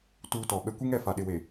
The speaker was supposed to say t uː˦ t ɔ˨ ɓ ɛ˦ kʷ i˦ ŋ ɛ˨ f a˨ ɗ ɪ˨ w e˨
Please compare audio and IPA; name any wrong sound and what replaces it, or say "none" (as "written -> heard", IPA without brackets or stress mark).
none